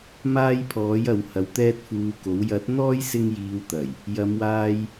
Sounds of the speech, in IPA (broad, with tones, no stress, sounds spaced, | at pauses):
m aː˥ j pʰ ɔː˨˥ j ɐ˨˧ w h ɐ˨˧ w t̪ ɛː˥ t̚ f uː˧ k o˨˥ w j ɐ˨˥ t̚ n̪ ɔː˥ j s ɪ˥ ŋ j iː˧ w t̪ ɐ˨˩ j | j ɐ˨˧ m w aː˧ j